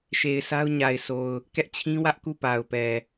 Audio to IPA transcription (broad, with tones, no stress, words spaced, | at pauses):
ʃe˨ɪ̯sa˦ʊ̯ɲa˨ɪ̯sʰo˨ʊ̯ | kɛ˦ʔt͡ɕʰĩ˦wä˦ʔku˦˨ pa˨ʊ̯pɛ˨